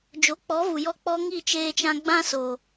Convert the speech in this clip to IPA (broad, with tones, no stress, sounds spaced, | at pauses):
d͡ʒ o˨˦ k͡p ɔ˨˦ v u˨ j ɔ˧ k͡p ɔ˦ ŋ i˦˨ t͡ʃ eː˧ t͡ʃ ã˧ ɡ͡b ã˦ s o˨